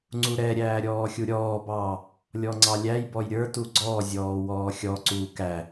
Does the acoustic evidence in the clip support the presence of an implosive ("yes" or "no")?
no